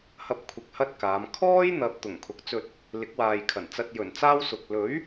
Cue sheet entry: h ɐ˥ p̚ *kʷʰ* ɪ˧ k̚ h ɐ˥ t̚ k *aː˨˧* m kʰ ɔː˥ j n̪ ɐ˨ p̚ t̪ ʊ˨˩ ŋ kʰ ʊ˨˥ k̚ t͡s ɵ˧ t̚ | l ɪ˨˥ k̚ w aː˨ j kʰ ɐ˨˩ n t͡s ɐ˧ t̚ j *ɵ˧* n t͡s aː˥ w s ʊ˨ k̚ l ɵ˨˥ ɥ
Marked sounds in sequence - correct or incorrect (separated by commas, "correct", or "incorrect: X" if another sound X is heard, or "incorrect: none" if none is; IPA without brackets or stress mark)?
correct, correct, incorrect: ɵ˨˩